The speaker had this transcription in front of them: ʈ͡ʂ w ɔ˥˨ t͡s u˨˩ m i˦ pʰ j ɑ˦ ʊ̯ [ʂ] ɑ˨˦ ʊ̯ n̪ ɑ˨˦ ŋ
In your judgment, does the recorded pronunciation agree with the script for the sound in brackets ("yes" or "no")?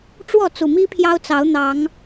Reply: no